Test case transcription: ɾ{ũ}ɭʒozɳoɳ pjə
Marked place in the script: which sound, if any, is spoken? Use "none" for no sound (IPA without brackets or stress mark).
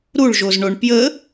u